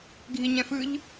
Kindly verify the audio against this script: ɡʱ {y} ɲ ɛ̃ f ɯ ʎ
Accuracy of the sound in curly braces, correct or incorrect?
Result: incorrect